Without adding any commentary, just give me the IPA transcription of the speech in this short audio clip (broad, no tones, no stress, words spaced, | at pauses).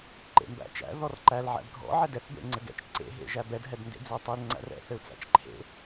ǃḛmbæ̰t͡ʃæ̰ ðɔrǃæl ʕæ̰bɡʱɔ̰ ʕɛdɛθbḛ ŋ͡ǀɘɡɛ̰t͡ʃ ǀḛɦḛʒæ bɛdɦɛdndḛ d͡zɘu̯tˤel ŋ͡ǀæ̰rɛ̰θɘu̯t͡sæ̰t͡ʃ ǃʰḛ